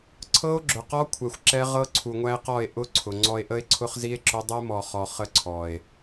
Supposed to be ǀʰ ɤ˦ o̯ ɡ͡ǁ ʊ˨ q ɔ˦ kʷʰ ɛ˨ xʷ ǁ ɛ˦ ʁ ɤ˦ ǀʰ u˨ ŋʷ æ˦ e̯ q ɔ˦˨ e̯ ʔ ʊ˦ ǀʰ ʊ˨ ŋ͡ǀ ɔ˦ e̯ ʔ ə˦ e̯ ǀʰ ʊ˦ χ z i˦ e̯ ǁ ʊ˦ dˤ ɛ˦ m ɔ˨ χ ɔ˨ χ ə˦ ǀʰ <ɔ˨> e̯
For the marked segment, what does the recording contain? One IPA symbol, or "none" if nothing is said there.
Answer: ɔ˨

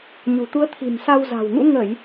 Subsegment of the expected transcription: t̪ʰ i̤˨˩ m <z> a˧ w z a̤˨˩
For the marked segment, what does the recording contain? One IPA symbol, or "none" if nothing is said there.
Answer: s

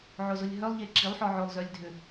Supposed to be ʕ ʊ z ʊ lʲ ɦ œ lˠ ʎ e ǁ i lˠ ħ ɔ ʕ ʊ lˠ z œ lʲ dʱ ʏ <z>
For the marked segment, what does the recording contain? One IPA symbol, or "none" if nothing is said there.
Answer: none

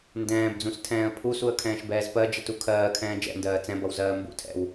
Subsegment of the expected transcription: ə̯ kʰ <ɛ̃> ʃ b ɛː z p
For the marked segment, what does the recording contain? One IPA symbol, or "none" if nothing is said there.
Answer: ɛ̃ː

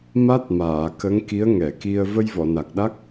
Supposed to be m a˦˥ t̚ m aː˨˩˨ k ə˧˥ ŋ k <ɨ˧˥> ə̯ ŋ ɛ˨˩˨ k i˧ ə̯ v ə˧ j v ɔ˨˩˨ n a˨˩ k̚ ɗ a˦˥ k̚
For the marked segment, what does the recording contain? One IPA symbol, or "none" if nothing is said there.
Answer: i˧˥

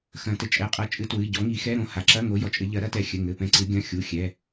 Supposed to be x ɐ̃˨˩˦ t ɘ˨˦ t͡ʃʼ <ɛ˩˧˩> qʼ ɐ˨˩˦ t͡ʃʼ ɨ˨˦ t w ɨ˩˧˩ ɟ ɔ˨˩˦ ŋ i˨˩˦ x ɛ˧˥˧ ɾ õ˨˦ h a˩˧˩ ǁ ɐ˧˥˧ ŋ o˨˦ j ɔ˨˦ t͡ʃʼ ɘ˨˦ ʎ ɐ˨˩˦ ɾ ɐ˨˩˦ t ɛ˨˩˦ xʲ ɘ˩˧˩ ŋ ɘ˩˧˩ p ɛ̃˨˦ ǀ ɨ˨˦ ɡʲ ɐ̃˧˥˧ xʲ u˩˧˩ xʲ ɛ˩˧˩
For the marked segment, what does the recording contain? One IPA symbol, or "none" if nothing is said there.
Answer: ɛ˩˧˩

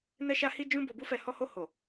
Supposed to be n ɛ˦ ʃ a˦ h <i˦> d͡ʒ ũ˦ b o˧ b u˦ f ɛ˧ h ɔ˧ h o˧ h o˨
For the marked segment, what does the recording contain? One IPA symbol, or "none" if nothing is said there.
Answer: i˦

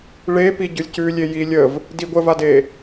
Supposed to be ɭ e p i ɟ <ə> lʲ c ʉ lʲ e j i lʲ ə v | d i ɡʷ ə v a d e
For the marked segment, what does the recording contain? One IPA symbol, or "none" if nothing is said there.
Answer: ʉ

